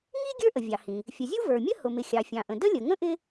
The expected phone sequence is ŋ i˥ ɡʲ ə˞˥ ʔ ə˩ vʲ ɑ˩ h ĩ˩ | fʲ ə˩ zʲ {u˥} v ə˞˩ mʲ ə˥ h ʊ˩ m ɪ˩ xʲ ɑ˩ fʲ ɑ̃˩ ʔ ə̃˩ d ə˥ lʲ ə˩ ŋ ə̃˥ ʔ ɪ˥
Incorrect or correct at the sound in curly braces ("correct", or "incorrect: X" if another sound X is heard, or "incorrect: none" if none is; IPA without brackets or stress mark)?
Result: correct